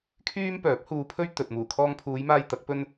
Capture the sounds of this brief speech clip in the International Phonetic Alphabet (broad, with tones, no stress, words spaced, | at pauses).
kʰyː˥mpœː˨˥p̚huː˧pʰɵ˥ɥ t̪ɵ˨t̚ muː˨˩kʰɔː˧ŋpʰuː˨˧jmaː˧j t̪ɐ˨˥k̚pɵ˥n